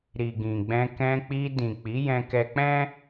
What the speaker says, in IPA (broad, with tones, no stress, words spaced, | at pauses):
ɾi˨ɡĩ˨ɡ͡bɛ̃˧ kɛ̃˧k͡pi˧ dĩ˨k͡pi˨˦ jɛ̃˧kɛ˧k͡pɛ̃˦